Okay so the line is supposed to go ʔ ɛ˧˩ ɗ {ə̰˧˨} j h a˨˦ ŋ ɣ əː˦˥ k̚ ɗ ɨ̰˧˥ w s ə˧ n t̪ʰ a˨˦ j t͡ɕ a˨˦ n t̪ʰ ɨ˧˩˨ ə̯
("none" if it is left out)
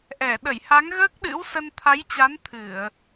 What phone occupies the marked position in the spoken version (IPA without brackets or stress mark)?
ə˧˩